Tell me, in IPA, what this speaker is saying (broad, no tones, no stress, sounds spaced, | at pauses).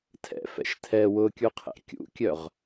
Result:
tʰ ɛ̰ f ɛ̰ ʃ tʰ ɛ w ʊ kʲ u qʰ ɛ̰ kʲ ṵ kʲ œ ʁ